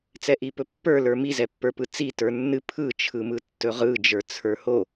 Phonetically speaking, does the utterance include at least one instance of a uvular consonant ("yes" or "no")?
yes